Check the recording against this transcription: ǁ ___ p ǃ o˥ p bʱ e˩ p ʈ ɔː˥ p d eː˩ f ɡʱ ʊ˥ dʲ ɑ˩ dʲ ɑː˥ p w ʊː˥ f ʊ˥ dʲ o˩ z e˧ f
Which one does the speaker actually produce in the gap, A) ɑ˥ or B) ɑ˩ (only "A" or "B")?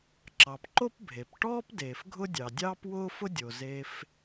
B